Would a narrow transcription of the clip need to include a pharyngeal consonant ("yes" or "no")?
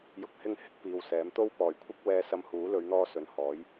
no